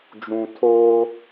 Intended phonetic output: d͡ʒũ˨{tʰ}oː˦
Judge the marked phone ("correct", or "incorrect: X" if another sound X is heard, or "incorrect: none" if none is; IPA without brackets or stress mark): correct